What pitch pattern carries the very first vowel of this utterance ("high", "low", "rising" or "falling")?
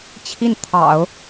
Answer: falling